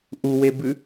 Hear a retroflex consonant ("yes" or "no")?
no